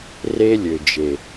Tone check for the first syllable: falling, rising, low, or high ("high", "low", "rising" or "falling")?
high